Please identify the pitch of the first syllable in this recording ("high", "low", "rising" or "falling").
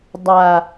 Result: low